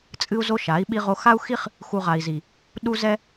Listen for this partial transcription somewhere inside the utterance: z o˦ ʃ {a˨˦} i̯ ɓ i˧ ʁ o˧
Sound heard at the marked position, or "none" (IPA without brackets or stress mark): a˨˦